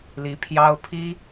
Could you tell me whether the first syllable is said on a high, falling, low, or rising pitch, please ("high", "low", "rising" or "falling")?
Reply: rising